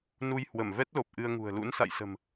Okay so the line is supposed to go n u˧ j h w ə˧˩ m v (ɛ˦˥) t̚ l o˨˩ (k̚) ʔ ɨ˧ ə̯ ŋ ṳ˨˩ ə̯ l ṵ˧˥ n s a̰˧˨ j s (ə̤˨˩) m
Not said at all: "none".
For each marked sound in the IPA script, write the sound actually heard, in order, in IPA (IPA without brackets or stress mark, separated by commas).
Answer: ɛ˦˥, p̚, ə̤˨˩